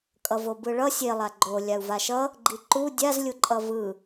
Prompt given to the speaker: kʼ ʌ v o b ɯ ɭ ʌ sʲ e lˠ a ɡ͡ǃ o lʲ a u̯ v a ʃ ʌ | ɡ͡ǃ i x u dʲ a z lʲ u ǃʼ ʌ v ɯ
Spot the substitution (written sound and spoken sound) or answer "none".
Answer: x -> ǃ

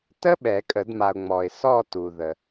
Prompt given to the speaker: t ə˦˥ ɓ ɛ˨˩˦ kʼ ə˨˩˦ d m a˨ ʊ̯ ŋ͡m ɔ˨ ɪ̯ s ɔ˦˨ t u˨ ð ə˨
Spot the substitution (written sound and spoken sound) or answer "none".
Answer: none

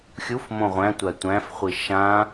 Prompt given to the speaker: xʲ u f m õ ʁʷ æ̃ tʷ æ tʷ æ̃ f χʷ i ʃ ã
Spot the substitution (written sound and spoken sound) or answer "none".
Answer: none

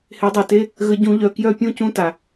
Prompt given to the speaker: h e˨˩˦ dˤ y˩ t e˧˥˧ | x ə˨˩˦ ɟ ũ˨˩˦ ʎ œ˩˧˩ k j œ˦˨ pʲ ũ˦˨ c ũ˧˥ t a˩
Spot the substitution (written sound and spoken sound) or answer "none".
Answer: x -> ɣ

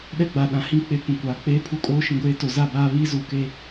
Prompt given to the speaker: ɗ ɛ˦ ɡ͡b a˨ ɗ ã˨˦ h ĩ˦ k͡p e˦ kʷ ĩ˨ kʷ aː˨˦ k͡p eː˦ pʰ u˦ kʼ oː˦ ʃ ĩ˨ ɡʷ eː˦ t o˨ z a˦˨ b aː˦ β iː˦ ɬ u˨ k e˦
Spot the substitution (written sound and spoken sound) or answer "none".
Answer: ɬ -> z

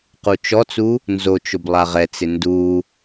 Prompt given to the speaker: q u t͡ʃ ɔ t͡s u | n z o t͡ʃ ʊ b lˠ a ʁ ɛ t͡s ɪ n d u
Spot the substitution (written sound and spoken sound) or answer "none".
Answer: none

